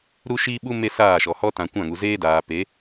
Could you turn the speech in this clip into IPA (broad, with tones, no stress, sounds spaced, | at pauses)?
ɾ u˦ ʃ i˦ ɓ u˦ m e˦ s aː˦˨ ʃ ɔ˨ h ɔ˧ t ã˨ kʷ ã˦˨ ŋ u˨ z eː˦ d aː˨ p e˨˦